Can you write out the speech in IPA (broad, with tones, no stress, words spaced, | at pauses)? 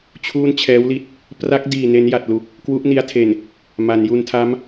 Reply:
t͡ɕʰuː˥˩nt͡ɕʰɛː˦˥wli˦˥t̚ | pra˦˥k̚diː˨˩ ne˦˥nja˨˩t̚lu˨˩k̚ | kwu˦˥ʔni˦˥a̯tʰe˨˩n | ma˩˦nju˧ntʰa˦˥m